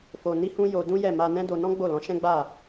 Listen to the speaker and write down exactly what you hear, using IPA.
f o˧ n i˦ h ũ˦ j o˧ d ũ˦ j ɛ˦˨ m a˧ n ɛ̃˦ d o˧ n ɔ̃˦ ɡ͡b o˦˨ l ɔ̃˨˦ ʃ ɛ̃˦ ɡ͡b a˦˨

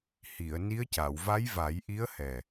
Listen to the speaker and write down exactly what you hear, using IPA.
h i˨˩˨ ə̯ n i˧˥ ə̯ c a˨˩˨ w v a˧˥ j v a˨˩˦ j ʔ i˧˥ ə̯ h ɛ˨˩

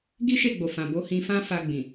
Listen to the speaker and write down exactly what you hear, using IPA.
ɡ i˦ ʃ e˦˨ ɡ͡b o˨ f ã˨ b o˨˦ h ĩ˧ f ã˦ f a˧ ɡ͡b ĩ˨

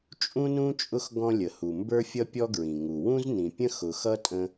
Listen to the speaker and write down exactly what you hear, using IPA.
t͡ʃʼ ũ˥ n ũ˥ t͡ʃʼ ʊ˥ x ɡ ɔ̃˦ lʲ ə˩ h u˩ m b ə˞˦ fʲ ʌ˦ pʲ ɔ˦ ɡ ɹ ĩ˩ ŋ u˩ w ũ˥ z n ĩ˨ pʲ ə̃˥ x ʊ˨ x ʌ˥ tʼ ə̃˦

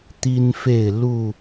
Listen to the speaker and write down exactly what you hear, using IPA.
t̪ i˦ n f e˥˨ ɪ̯ l u˥˨

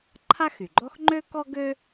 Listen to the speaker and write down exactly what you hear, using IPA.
ǃʰ a˥ x y˩ ɡ͡ǃ ɔ˥ x ŋ͡ǃ ø˥ k ɔ˥ ɡ ø˥

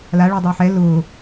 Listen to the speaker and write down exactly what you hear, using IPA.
l a ɭ ʊː dˤ uː ħ ɛ l ʊː

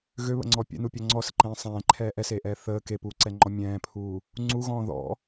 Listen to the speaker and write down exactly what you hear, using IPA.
ɣ ø β ə̰ ŋ͡ǀ ɔ pʲ ə̰ n u pʲ ɔ ŋ͡ǀ ɔ s ə̰ ǃ ɛ̃ː sˤ ɛ̃ː ǃʰ ɛː ʔ ɛ s eː ʔ ɛː θ əː k e p uː ǀ ɛ ŋ͡ǃ ɔ mʲ ɛ̃ː pʰ uː | ŋ͡ǀ u ɣ ɔ̃ː ð ɔ̰

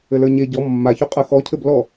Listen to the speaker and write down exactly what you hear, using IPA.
ɘ l ə˞ ɲ e ɟ ɔ mː a ç u qʼ ə x ɔ cʰ ɘ b l ɔ

